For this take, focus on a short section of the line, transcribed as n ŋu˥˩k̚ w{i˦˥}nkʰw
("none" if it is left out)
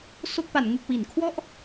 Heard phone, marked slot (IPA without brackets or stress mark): i˩˦